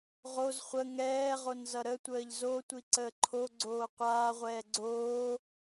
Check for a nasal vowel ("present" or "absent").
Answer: absent